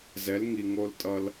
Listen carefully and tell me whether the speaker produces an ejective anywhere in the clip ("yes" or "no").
yes